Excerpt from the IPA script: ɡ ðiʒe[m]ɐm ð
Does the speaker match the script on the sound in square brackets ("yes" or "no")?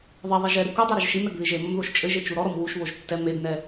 yes